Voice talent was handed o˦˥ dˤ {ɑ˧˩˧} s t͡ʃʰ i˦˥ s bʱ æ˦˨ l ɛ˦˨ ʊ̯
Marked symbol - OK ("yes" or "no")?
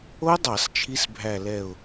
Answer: yes